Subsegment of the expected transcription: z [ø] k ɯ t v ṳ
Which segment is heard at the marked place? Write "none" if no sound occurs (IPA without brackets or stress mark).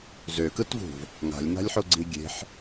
ø